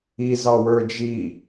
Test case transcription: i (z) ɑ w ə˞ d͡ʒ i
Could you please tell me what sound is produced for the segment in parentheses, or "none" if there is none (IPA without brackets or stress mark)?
z